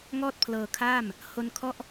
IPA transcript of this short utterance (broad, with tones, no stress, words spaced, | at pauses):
ŋɔː˥˩t̚ pʰlɤː˧kʰaː˥˩m | ho˧nkʰɔ˦˥ʔ